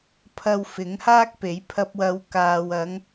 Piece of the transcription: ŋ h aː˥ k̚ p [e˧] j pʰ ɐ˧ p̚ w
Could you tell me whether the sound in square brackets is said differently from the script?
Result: yes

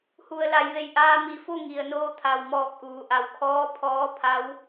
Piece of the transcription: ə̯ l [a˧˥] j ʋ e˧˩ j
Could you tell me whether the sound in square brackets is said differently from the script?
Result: yes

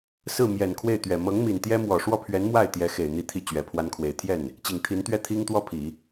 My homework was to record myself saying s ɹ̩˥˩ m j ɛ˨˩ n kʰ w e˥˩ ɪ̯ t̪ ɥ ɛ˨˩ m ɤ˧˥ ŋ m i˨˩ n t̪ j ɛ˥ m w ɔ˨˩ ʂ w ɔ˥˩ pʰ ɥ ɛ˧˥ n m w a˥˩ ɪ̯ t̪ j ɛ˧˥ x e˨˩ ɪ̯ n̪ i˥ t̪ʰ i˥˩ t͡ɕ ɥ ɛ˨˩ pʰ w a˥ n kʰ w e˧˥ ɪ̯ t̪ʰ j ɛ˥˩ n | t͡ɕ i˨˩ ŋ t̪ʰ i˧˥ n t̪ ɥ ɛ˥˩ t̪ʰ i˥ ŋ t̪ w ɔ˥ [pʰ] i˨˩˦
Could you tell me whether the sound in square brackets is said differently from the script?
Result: no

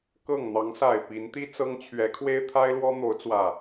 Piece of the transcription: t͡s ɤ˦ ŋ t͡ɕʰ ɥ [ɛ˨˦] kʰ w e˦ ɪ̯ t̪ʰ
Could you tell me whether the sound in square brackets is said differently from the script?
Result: no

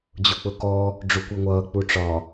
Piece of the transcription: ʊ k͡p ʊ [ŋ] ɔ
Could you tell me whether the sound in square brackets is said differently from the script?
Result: yes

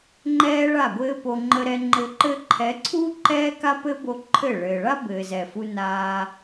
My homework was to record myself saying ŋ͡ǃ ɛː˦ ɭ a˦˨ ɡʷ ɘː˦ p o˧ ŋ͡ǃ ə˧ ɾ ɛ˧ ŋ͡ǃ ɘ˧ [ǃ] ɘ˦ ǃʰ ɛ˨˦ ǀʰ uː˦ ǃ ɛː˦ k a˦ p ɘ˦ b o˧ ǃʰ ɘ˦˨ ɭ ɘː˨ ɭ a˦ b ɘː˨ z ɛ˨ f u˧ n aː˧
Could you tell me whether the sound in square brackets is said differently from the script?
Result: no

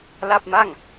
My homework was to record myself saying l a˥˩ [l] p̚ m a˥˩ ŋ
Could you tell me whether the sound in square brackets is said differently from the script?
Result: yes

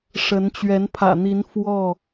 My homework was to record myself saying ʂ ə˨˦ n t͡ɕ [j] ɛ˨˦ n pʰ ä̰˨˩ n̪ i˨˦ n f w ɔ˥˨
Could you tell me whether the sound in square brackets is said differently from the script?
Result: yes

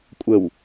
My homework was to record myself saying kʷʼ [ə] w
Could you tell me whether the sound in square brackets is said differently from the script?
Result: no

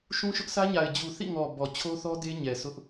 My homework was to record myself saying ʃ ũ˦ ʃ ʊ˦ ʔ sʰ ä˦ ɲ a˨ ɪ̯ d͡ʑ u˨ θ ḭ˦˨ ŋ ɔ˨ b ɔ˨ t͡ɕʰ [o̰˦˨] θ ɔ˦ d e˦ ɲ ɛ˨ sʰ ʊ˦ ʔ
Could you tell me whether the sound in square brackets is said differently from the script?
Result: yes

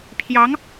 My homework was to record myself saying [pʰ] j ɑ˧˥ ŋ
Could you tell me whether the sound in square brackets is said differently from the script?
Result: no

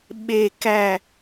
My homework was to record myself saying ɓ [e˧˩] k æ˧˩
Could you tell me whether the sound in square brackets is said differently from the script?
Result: no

